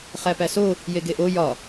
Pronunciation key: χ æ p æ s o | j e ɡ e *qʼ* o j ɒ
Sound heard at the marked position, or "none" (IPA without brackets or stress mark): ʔ